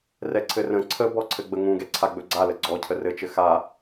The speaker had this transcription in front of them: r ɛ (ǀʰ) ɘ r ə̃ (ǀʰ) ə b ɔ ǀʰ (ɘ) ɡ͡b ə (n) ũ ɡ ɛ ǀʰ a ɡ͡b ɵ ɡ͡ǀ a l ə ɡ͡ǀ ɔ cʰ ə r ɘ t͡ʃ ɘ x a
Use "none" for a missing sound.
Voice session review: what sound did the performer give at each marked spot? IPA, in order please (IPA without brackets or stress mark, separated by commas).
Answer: ǀʰ, ǀʰ, ɘ, ŋ